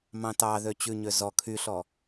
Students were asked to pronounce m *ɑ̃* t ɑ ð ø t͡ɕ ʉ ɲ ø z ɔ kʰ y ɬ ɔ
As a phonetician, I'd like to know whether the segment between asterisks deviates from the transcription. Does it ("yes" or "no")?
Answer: no